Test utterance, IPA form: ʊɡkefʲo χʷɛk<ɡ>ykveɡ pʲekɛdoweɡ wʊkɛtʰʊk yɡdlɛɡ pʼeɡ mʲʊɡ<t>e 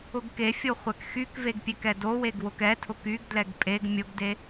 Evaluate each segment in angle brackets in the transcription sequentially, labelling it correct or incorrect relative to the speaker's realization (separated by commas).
incorrect, incorrect